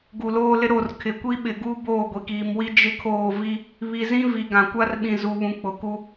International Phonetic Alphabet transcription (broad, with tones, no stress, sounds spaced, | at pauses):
ɡ u˨ l oː˦ l ɪ˦ ɾ o˦˨ r kʰ ɪ˨ kʷ i˦ ɓ ɪ˨ ɡ u˦ b oː˦˨ ɡʷ i˨ k iː˨ m w i˦ d͡ʒ ɪ˦ kʰ oː˦˨ v i˦ | β i˨ z ĩ˦ v i˨ ɡ ã˨ kʷ a˦ r ɓ ĩ˨ z u˨ β ũ˨ k͡p ʊ˨ k u˦